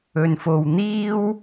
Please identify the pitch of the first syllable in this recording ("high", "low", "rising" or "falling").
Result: low